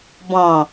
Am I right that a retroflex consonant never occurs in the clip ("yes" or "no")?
yes